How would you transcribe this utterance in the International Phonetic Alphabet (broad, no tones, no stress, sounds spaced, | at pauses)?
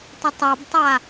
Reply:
tˤ ɪ tˤ a b tˤ a